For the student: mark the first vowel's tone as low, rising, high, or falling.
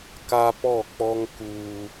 high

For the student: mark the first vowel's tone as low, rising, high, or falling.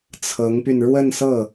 rising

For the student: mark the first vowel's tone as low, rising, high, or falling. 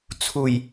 low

